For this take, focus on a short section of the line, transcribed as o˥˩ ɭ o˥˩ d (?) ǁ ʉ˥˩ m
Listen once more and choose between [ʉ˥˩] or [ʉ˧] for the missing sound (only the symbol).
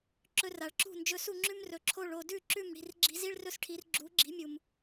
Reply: ʉ˥˩